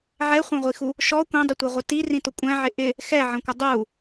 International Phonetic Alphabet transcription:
ʕɛχʷæ̃ʁʷixu | ʃɔ kʷɛ̃dˤətʷʌʁʷɪ tirĩtʊ kʷʼæ̃ʕɪ ʔɪ | xɛʕə̃kʷɪ dˤu

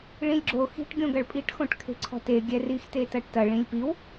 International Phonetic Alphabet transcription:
ɭĩlʲɡ͡ǁo xi̤ʈ ɡʲõɡɐɭpʼiʈ xõʈkʰe̤ǀʰɔ̤te ɡʲɛrix tetɐʈtɐ ɭĩlʲpiw

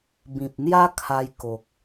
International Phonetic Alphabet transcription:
bĩ˨p̚n̪ja˦ kʰa˧j ko˨k̚

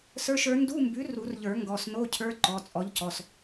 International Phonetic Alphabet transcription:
sə˞˧˥˧ʃə˞˨˥ ndu˧˥˧mbʉ˨˥ ru˨˩˦rʎə˞˨˩˦ ŋɡɔ˩˧˩sno˧˥˧cʰə˞˧˥˧ ǃɔ˩˧˩t͡sʼɔ˨˥ʎcɔ˩˧˩s

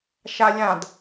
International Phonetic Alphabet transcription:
ʃalʲãd

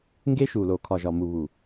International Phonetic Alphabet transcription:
ŋɡe˦ʃu˨lo˨ kʰɒ˨ʒɒ˨mu˨ βu˨

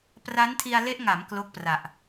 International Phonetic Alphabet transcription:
pra˦˥ntʰi˧a̯le˦˥ʔŋa˩˦m klo˥˩k̚pra˨˩ʔ

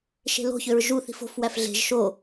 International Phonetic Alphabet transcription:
ʃe̤lo̤çøɹ ʒuθ i̤fo̤fwæf ɮe̤ʒ ʃo

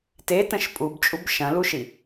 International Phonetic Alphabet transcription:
tetə̃ʃ pʼubt͡ʃʼub ʃɐ̃luʃi

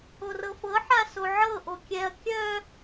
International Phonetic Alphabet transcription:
orɤfɤ ħasoʕɤ ʔokʲɛɐ̯ kʲœ

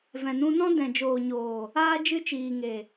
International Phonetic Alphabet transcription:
vɛ̃˨nũ˧nɔ̃˦ dɛ̃˨d͡ʒoː˨ɲoː˨ | aː˦ d͡ʒɨ˦t͡ʃiː˨ŋe˨

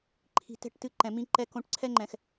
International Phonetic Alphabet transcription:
ǃʰi̤˨ tɛ̤˦˨ʈtɨ˦ǃɛ̃˨mĩ˦ ǃɛ˦kõ˦ʈ ǀʰɛ˦ŋ͡ǃɛ̃˨x

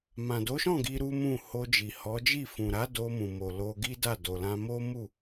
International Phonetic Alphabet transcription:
mã˨do˨˦ʃɔ̃˦˨ ɡi˧ ɾu˦mũ˦˨ ho˧d͡ʒi˨hɔ˨˦d͡ʒi˦˨ fũ˨ɾa˨˦ do˧mũ˨mo˨ lo˧ɡi˦da˦˨ do˨lã˧ mo˦mu˦˨

